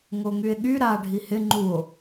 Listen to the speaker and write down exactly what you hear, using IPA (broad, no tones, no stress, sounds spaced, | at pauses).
ŋ o ŋ y e̯ ɠ y ɾ a ɖʱ i h ɪ ŋ͡ǃ u o̯